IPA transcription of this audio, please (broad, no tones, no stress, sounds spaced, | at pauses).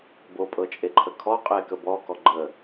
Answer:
b o pʼ ɤ t͡ʃʼ e ǃʰ ə kʰ ɔ qʼ e k ə b ɔ k ɔ ɡ͡ǃ ə